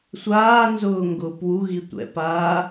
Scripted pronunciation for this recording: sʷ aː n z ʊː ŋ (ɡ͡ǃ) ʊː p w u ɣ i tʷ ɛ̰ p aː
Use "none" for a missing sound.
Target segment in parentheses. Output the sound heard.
ɡ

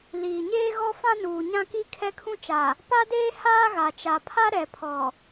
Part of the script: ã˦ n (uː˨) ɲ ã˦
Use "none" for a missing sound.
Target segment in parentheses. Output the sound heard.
uː˨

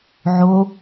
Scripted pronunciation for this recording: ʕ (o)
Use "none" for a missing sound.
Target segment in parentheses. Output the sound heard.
o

